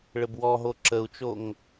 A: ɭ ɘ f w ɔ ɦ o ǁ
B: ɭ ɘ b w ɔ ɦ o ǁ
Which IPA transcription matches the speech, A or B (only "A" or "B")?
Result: B